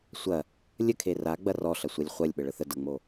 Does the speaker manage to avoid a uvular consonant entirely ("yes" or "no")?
no